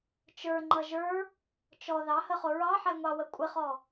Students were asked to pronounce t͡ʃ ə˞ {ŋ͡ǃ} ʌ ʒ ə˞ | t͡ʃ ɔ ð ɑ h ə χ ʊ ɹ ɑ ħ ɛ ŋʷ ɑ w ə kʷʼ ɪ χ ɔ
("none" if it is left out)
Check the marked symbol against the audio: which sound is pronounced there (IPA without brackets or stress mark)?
ŋ͡ǃ